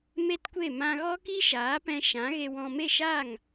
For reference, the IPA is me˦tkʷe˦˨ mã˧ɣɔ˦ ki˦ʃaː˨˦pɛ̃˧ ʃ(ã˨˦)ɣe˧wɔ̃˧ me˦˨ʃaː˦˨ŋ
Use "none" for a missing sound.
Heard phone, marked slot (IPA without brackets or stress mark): ã˨˦